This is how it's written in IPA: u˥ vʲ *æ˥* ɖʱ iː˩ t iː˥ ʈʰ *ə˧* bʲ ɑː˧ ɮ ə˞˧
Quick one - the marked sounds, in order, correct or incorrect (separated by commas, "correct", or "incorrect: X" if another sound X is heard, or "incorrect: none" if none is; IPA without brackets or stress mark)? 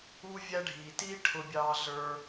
correct, incorrect: ʊ˧